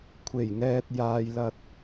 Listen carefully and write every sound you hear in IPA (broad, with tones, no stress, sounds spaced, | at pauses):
kʷʰ e˨˩ j ŋ ɛː˨ t̚ j aː˨ j l ɐ˧ t̚